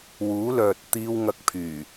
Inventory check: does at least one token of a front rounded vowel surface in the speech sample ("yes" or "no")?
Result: yes